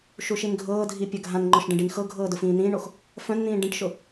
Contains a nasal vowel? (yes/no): yes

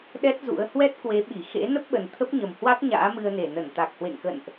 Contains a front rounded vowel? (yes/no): no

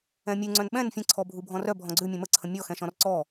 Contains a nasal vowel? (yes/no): yes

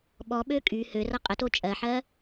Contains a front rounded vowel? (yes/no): yes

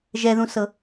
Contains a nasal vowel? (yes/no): yes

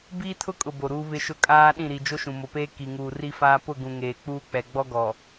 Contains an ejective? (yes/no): yes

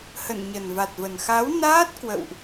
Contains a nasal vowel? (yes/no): no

